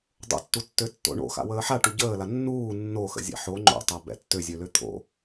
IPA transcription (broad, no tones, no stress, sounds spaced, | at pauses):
dˤ o̰ tː u tː ø tː o̰ ɳ o̰ x a̰ w əː ħ a ʈ u ɟ əː l a nː uː nː o x ə̰ zʲ ɛ̰ ħ o ŋ͡ǃ o̰ tˤ a b ɛ̰ tː ø zʲ ø l ø t̪ʰ o̰